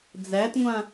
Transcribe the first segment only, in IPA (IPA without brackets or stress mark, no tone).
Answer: d͡z